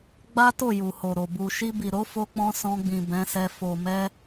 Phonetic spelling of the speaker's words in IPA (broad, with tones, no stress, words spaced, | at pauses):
ɡ͡ba˦to˦˨ ju˨ho˨ɾo˨ bu˨ʃi˧bi˨ ɾo˨˦fo˧k͡pɔ̃˧ sɔ̃˧ɡ͡bĩ˨ bɛ̃˨˦sɛ˧ fo˨ mɛ˧